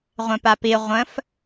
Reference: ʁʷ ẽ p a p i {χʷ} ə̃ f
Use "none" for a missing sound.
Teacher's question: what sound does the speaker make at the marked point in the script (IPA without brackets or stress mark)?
ʁʷ